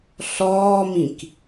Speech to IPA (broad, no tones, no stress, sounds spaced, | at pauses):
ɬ ɔː m ĩ k